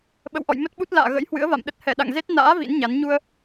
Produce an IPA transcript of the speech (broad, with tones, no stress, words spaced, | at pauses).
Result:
ɓə̰˧˨wʔɔ̰˧˨jmə˦˥t̚ɓu˦˥t̚ la̰ː˧˨ ɣə̰˧˥jhwɨ̰˧˥ə̯va̰˧˨mɗə˦˥t̚ hɛ˧˩ɗa̰˧˨ŋ ze˦˥t̚ na̰ː˧˥ vḭ˧˥nɲa˨˦n ɲu˧ə̯